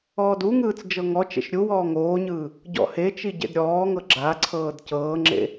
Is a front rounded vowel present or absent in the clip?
absent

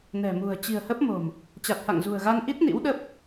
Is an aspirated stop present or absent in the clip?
absent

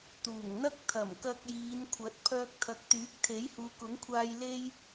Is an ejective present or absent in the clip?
absent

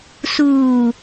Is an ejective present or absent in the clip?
absent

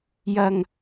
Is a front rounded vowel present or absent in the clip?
absent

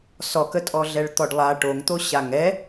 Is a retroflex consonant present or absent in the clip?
present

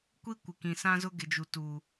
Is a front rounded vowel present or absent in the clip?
absent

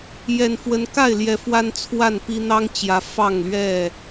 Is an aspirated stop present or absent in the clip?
present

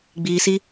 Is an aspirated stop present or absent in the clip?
absent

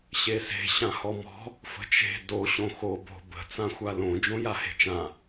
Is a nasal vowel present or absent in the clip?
present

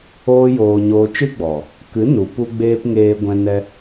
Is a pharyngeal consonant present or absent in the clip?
absent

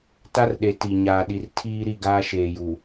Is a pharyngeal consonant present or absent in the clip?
absent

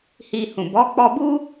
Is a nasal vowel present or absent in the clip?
present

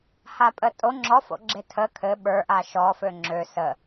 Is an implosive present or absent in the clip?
present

